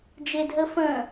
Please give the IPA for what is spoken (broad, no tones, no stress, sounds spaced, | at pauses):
d͡ʒ e dʱ ə f ə̃